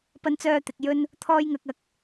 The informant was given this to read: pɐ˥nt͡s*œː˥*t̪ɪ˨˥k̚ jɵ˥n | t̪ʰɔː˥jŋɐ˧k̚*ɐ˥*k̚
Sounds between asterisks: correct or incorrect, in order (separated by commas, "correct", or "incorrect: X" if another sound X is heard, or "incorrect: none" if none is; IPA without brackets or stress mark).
correct, incorrect: ɐ˨˥